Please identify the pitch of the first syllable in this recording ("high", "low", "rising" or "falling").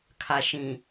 low